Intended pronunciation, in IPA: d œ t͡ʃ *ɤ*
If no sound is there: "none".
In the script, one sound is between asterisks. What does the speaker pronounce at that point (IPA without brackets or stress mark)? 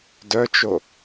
o